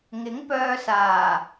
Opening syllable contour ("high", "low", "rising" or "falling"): rising